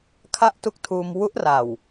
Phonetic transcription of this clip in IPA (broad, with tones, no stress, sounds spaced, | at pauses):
kʰ a˥˩ ʔ t u˦˥ k̚ tʰ uː˧ m w u˦˥ ʔ r a˨˩ w